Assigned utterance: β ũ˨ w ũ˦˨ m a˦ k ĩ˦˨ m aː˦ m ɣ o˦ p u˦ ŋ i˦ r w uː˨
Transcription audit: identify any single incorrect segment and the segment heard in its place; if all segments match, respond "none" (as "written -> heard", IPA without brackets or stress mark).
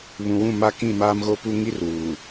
none